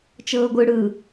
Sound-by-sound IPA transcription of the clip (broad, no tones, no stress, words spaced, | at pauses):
t͡ʃɤːɡʷɯ ɽɯ